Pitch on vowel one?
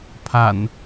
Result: low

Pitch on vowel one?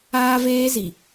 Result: high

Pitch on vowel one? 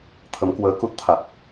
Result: rising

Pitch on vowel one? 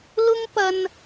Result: high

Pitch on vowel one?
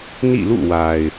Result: falling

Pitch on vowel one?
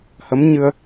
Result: rising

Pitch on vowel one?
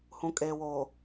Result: low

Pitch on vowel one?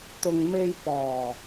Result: low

